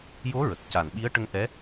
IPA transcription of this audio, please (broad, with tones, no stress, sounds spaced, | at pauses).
j o˧˥ ɹ ə˨˩ k̚ c a˨˩ n ɓ i˧˥ ə̯ ʈ ə˧ ŋ ʔ ɛ˧˥